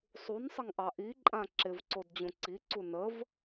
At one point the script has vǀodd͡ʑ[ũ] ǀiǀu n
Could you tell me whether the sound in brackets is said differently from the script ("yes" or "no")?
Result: no